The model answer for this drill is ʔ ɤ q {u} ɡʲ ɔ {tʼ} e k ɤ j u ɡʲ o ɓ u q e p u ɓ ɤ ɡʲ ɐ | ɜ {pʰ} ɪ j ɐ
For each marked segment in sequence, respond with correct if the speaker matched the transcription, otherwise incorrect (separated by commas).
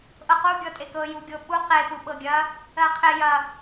correct, correct, incorrect